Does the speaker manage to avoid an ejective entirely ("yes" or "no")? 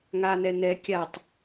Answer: yes